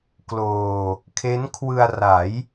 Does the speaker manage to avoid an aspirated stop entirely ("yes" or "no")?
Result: no